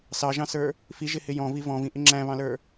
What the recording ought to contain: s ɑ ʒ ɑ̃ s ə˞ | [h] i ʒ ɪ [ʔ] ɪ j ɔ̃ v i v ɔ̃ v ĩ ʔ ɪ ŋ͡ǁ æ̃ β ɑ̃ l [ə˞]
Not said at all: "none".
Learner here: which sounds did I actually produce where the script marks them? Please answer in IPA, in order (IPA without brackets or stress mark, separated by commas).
f, h, ə˞